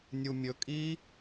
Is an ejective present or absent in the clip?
present